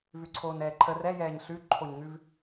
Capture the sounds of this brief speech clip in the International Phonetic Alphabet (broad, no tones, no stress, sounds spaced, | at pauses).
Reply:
v ʉ ǀʰ oː n ɛː ǃʰ ə r ɛ j ɛː ɲ ɬ ʉ ǃʰ o ɲ ŋ ʉ v